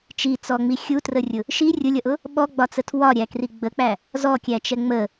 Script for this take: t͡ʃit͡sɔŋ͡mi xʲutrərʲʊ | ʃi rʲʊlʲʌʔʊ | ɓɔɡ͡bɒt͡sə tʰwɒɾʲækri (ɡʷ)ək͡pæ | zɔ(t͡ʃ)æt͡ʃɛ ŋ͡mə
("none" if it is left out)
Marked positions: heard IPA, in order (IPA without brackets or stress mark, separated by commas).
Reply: ɡ͡b, kʲ